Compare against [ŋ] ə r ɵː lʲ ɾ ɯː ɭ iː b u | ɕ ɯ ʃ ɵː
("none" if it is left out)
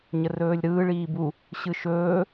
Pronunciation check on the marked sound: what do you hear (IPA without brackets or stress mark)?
ɲ